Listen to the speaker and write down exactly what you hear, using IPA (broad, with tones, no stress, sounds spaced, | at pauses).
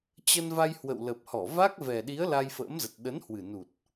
t͡ɕ ə˧ n v a˧ j h w ə̰˧˨ w l ə˨˩ p̚ h ɔ˧˩ v a˦˥ k̚ v ɛ˨˩ ɗ i˨˦ ə̯ l a˧ j f ə̰ː˧˥ m z ə˨˩ t̚ ɗ ə˨˦ n h w ɨ˨˩ n u˨˩ t̚